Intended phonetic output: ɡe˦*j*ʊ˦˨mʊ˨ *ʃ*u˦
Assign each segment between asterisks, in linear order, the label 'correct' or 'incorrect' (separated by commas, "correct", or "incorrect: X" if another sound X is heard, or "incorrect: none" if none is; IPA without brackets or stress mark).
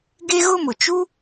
incorrect: ɣ, incorrect: t͡ʃ